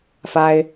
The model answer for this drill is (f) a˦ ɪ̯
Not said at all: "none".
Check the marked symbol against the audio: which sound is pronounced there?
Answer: f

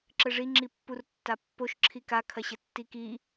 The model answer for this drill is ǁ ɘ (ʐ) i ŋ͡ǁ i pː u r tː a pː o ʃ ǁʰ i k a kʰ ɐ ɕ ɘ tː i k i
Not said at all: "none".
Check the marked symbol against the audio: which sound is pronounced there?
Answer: ʐ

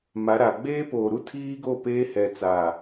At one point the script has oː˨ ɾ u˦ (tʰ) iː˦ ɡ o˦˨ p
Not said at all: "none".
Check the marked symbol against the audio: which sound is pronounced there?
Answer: tʰ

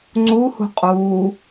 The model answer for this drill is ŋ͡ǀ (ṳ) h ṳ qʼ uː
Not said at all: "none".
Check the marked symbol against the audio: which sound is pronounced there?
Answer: u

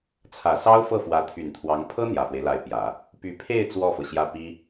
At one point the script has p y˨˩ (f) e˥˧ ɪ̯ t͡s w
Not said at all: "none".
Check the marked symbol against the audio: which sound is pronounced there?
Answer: pʰ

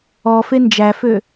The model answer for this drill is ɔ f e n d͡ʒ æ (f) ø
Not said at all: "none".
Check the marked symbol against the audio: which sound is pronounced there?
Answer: f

